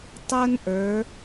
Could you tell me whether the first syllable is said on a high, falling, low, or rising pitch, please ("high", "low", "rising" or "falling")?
high